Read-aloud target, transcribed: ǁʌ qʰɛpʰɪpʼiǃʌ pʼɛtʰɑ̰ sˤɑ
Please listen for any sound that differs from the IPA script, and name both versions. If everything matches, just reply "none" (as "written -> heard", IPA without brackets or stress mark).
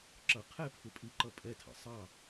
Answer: none